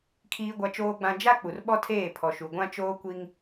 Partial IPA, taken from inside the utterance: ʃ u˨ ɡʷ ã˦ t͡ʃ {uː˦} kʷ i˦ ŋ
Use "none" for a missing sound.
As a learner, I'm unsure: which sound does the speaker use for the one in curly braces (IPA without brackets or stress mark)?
oː˦